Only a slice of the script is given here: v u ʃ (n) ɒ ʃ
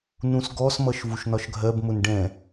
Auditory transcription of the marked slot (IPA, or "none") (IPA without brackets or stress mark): n